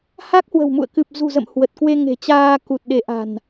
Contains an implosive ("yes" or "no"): yes